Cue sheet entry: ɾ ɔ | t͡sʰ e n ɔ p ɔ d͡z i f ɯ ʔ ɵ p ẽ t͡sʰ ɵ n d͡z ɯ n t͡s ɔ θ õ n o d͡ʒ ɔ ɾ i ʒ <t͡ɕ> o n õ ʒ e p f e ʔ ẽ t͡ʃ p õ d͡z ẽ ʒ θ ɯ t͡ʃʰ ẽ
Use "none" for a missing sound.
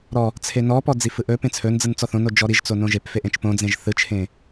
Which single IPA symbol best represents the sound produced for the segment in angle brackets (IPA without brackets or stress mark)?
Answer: t͡s